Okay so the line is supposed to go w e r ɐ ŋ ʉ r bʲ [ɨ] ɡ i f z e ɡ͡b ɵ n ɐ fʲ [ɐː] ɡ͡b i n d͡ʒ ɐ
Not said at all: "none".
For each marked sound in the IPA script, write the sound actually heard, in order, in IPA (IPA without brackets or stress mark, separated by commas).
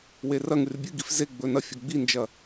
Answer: ɨ, ɐ